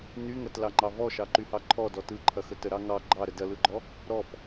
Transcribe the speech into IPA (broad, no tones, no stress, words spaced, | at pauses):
nyŋɐtlɑŋ͡ǃɑ vɔʃɑǃyhɑ ǃʰɔdɔ tɯǃʰɐxə təɾɑ ŋɑ ɡ͡ǃɑɾə dɐlɯɡ͡ǃɔ | ɾɔp